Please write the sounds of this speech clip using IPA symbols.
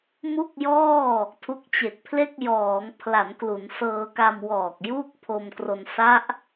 m u˥˩ k̚ j ɔː˥˩ | tʰ u˦˥ k̚ t͡ɕ e˨˩ k̚ pʰ l e˥˩ k̚ j ɔː˩˦ ŋ pʰ l a˩˦ n k l u˩˦ n s ɤː˧ k a˧ m w ɔː˨˩ k̚ j uː˥˩ k̚ pʰ o˧ m k r o˧ n s a˦˥ ʔ

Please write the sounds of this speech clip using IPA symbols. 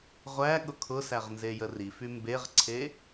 ʁʷ æ ɠ ʊ kʰ ʊ s æ ʁ n z e j ə r i f y m b e ʁ ǀʰ e

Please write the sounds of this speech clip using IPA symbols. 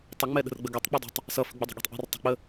tˤ ə ŋ͡m ɛ ɗ ə̤ r ɡ͡b ə ɡ e tˤ k͡p ʌ dˤ ə̤ tˤ | s ʌ f ə̤ ɡ͡b ə dˤ ə̤ ɠ e̤ tˤ ʔ ɛ̤ r tˤ ə̤ k͡p ə

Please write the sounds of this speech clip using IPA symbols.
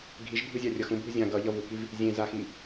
ɡʱ i ʒ bʱ ɯ zʲ a rʲ ʌ x ũ bʱ u zʲ ã ɡ ʌ ʎ ʌ v u k i v | zʲ ẽ z a x i

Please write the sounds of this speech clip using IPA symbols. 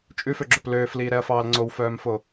t͡ʃʼ ʉ f ø ɡ͡ǁ ɵ p l øː f l iː ɾ ɛ ɐ̯ f ɑː l ŋ͡ǀ o w f œː m f o

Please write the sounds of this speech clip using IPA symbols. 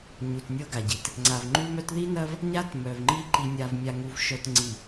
ɲ u˨ t nʲ ɤ˦ ɡ a˨ ɟ i˨ t | ŋ͡ǀ a˨ v ŋ͡ǃ u˦ m œ˦ t ð i˦ n ɐ˦ v | ɲ a˦ t m œ˨ v ŋ͡ǃ i˦ ǃ i˨ nʲ a˨ v mʲ a˨ ŋ u˨ v ʃ œ˨ t ŋ͡ǀ i˨

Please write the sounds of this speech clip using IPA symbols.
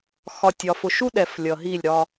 x ɒ˨ tʲ ɒ˨ f ʊ˨ ʃ u˦ ɗ ɛ˨ f lʲ ʌ˨ ɦ i˦˨ lʲ ɾ ɒ˦

